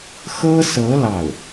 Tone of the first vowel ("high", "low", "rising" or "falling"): high